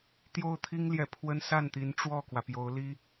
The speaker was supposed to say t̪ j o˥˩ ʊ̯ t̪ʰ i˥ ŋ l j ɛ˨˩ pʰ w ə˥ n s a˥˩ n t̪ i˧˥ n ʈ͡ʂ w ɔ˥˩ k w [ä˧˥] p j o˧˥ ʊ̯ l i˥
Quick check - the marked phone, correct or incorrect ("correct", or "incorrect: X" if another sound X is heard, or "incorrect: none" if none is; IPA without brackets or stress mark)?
incorrect: ä˩